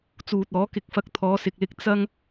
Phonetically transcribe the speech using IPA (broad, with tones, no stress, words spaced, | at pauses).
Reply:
t͡suː˨t̚ɔː˨˥kɪ˧k̚ fɐ˧k̚t̪ʰɔː˨˧sɪ˨k̚lɪ˧k̚ t͡sɐ˥ŋ